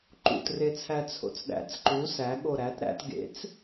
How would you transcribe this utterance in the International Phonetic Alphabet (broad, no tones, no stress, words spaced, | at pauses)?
ǃṵtret͡sʰæ t͡sʰo̰t͡sɗæ̰t͡s ǃu sæ ɠoɾæt ɾæ̰t ɡḛt͡s